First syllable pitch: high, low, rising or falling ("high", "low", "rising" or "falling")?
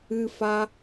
high